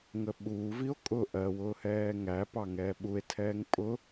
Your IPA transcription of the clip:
ŋəɓuːvio̯ kʼʊ ʔɜwʊːhɛː ŋæ pɑŋɛːɓue̯ tʰɛːŋpʼʊ

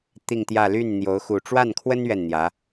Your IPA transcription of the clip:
t̪i˥˧ŋt̪jä˥˧ ly˥˩nn̪jo˧˥ʊ̯ xu˥˧ ʈ͡ʂwa˥˩nkʰwə˥n ɥɛ˥˩nn̪jä˧˥

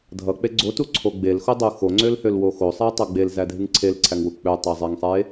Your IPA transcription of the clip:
dʱʌk͡pe ɡ͡ǀotuǀʰo ɡ͡belxodˤu xoŋ͡ǀølhølwo xosˤætˤʌ ɡ͡belzædʱɨŋ ǀʰelǀʰæŋwu k͡pøtˤæzˤeŋsˤe

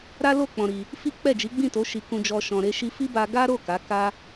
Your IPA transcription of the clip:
ɾa˦lo˦˨ k͡pɔ̃˧ɾi˧ | fi˦k͡pɛ˦˨d͡ʒi˨˦ ɡ͡bĩ˦˨to˨˦ ʃi˧kũ˧d͡ʒɔ˧ ʃɔ̃˨ɾe˧ ʃi˧fi˦ba˧ɡa˦ ɾo˦˨ ka˨˦ka˦

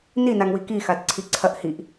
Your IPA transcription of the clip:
ninaŋwi kixad ǀʰiǀʰɐʔ hiʔ

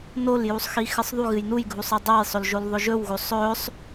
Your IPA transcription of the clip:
noljusˤxi xɨsˤðˤuɣɨj nujɡʱusˤ ɨdˤajsˤɵlʒol ðˤɵʒɵwɣosˤ ɵsˤ

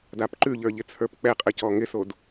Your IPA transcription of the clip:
dapǃʉʎə˞ ʎɪt͡sʰə˞pk͡pɛqʼɘ cɔŋɪsod

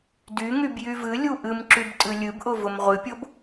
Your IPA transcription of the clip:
dyŋyb jyvɨlʲu ʔɨmǁyb tʼɨlʲɨbʔʊ vʊmʁʷɨpʲob

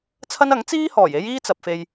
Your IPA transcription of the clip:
t͡sʰɐ˥n ɐ˨˥ŋt͡siː˥hɔː˨˩j e˥jiː˥t͡sɐ˨p̚fe˧j

